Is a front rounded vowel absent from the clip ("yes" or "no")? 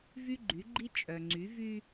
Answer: no